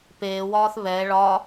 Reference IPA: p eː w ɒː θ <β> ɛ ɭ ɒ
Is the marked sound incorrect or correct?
correct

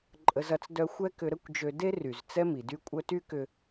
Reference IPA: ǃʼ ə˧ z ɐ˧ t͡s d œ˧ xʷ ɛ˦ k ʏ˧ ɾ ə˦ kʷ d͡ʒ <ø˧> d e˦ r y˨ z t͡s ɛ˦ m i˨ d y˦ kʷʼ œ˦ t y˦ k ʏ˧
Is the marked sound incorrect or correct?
correct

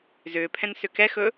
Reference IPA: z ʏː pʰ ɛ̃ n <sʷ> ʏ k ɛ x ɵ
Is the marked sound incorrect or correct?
incorrect: s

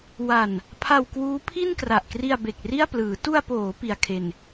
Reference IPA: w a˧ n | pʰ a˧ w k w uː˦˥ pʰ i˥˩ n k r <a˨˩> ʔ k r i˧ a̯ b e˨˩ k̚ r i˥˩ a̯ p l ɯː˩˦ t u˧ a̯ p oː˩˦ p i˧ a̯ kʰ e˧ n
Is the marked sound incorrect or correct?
correct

